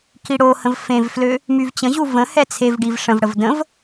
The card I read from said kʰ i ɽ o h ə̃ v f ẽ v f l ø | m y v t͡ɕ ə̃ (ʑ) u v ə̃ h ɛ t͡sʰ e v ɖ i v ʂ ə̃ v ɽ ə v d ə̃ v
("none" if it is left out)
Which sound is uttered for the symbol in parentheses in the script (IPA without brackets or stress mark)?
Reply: ʑ